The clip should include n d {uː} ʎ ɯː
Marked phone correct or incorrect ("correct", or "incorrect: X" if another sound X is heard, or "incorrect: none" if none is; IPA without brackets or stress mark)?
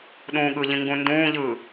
incorrect: ũː